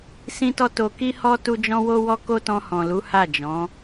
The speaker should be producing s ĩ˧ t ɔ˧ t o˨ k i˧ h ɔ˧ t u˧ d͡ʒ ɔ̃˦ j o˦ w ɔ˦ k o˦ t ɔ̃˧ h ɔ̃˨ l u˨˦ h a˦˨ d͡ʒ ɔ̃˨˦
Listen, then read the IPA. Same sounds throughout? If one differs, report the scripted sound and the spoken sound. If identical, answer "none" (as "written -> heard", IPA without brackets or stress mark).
j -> w